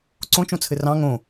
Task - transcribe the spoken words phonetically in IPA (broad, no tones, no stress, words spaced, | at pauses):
ǀõt͡ʃõt͡sʰɘ rɑ̃ ŋõ